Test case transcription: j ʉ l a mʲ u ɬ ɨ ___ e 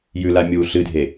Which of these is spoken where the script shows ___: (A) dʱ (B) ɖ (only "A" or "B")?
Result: A